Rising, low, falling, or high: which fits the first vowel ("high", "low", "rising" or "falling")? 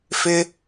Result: high